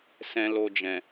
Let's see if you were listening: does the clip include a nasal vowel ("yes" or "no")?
yes